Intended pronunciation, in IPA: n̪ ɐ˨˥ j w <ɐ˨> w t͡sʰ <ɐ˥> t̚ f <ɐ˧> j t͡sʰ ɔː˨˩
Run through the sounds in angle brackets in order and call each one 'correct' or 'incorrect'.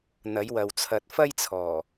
correct, incorrect: ɐ˨, incorrect: ɐ˥

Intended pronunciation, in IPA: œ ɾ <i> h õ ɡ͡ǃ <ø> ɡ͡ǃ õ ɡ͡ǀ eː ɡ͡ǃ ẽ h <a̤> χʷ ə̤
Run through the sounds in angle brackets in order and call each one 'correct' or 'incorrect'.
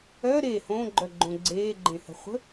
incorrect: e, incorrect: œ, incorrect: ə̤

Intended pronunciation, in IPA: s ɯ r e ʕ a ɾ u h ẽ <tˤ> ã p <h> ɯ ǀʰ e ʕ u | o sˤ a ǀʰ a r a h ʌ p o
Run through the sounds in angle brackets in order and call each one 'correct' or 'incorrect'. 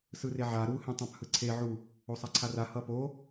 correct, correct

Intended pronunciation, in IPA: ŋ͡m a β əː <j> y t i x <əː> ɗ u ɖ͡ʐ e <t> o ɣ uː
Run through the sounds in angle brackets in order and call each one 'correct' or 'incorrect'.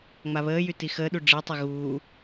correct, correct, incorrect: tˤ

